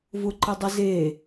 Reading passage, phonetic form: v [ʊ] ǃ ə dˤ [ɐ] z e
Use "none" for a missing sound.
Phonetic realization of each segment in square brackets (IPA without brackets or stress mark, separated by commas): ʊ, ə